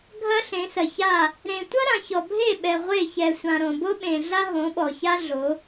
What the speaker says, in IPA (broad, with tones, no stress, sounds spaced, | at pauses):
ɡʱ ɐ˦ ɬ ẽ˨˦ s ɐ˨ ç a˦˨ | ɾ ẽ˨ tʷ ɐ˦ ɾ ã˨ ç ɔ˨ bʱ e˦˨ ɓ ɛ˨ ʁʷ e˦˨ ç ɛ˨ sʷ ã˨ ɾ õ˨ b o˦ ɓ ẽ˨ ɮ a˦ ɦ õ˨˦ ɓ ɔ˨ ç a˦ ɮ o˨˦